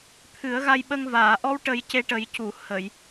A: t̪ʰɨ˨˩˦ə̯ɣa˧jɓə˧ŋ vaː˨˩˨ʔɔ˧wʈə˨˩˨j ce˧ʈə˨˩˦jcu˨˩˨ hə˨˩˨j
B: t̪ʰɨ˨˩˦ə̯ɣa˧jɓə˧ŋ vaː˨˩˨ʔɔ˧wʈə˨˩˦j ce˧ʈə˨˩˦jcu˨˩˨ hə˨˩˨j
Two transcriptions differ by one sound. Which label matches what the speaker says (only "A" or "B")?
B